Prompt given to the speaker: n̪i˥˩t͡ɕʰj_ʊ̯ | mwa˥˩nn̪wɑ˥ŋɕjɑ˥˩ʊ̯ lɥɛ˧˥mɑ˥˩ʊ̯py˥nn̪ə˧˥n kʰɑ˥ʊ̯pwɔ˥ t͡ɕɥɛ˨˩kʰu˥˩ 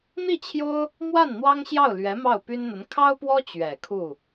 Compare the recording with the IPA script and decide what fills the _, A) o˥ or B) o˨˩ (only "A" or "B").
A